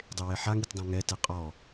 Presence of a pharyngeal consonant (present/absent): present